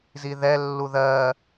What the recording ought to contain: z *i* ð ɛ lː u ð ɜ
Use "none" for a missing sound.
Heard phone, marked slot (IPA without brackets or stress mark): i